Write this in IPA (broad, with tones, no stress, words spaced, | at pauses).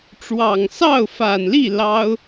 ʈ͡ʂwɑ˨˩ŋsɑ˥˩ʊ̯fa˨˩nli˥˩ lɑ˥ʊ̯